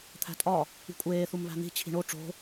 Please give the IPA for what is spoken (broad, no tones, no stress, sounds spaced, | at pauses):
t̪ʰ æ̤ tʼ ɒ | i̤ kʷʼ eː θ u m β æ̤ n̪ i̤ t͡ɕʰ i̤ ɳ o ʈ͡ʂ o̤